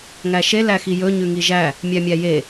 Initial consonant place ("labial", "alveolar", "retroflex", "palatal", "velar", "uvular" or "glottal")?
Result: velar